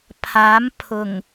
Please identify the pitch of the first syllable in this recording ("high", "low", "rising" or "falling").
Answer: rising